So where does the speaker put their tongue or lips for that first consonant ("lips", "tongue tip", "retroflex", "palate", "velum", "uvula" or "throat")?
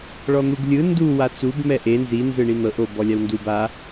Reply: retroflex